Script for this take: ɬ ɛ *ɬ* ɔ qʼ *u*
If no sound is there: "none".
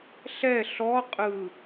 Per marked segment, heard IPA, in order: ɬ, ɯ

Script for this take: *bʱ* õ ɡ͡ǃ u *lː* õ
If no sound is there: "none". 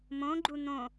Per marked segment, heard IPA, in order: m, n̪

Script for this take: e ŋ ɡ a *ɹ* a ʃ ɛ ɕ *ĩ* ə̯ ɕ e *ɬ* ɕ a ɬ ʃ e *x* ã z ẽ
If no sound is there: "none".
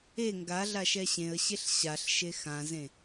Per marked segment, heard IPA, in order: ɮ, ẽ, ɬ, x

